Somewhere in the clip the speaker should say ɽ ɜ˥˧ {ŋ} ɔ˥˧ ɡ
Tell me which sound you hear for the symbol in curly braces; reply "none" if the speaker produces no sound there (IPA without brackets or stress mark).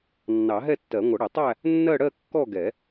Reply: kː